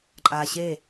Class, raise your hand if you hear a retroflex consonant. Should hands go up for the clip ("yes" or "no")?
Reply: no